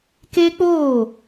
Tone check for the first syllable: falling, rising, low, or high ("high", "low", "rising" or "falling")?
high